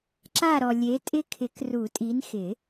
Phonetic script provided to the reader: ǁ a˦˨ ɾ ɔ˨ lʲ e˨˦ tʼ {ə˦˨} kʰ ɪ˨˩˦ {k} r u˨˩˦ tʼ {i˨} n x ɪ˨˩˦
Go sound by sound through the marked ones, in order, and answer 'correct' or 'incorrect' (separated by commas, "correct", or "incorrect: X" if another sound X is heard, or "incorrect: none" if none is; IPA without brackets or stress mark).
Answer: incorrect: ɪ˦˨, correct, incorrect: i˨˦